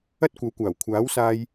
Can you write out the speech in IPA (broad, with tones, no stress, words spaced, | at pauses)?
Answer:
ɐ˥t̚kʷɐ˨˥wkʷaː˨˩wkʷʰaː˨˥w saː˧j